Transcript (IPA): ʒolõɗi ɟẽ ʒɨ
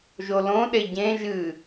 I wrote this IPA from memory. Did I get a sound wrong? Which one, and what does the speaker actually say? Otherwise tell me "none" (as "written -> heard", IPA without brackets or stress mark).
i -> e